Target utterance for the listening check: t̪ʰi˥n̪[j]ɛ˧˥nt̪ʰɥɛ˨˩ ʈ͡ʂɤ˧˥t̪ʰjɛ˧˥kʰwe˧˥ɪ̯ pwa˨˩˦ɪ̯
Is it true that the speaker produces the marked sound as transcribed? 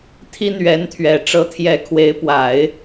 no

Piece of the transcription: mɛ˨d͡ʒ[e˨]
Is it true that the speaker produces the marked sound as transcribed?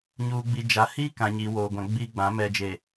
yes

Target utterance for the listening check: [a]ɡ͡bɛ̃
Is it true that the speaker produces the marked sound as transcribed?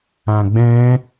no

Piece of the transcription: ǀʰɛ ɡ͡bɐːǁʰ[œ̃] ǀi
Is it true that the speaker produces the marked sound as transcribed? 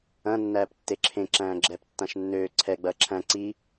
no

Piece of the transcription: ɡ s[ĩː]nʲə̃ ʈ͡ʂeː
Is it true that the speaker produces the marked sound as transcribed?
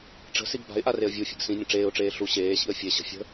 no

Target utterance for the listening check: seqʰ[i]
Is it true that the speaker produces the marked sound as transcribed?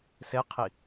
yes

